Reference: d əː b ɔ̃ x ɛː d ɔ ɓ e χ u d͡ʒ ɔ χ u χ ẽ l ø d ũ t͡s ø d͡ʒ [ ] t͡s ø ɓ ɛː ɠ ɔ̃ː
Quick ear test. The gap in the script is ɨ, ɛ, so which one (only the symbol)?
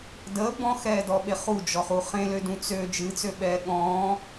ɨ